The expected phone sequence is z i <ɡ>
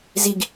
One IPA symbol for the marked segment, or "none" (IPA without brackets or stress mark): ɡ